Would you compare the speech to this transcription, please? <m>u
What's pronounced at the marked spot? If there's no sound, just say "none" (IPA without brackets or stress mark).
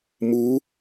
m